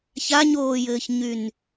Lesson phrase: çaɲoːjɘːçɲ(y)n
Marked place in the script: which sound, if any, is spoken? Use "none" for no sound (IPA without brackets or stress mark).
y